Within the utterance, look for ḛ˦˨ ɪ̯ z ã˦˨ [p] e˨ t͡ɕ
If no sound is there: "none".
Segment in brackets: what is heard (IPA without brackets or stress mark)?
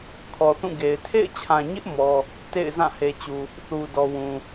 h